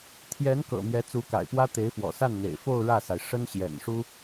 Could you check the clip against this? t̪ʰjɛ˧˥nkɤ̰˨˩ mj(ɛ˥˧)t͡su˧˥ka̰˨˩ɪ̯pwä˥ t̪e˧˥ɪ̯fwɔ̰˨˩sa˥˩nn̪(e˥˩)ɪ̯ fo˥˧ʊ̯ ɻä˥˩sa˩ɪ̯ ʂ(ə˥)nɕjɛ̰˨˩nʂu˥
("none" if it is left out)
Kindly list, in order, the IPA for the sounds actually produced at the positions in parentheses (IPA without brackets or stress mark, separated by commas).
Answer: ɛ˧˥, ḛ˨˩, ə˥